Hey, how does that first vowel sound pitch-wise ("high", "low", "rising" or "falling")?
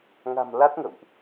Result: low